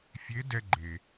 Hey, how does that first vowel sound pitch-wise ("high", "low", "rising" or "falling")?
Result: rising